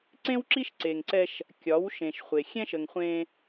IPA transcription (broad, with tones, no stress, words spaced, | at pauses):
ǀẽ˦wǁi˦ʃ ǀe˨ŋǀɛ˦ʃ | kʲɒ˨˦wʃẽ˨ʃχʷe˨ xʲɛ̃˦ʃə˨ŋχʷẽ˦